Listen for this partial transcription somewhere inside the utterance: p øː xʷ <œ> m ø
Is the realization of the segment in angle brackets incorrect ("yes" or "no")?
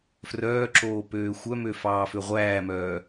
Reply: no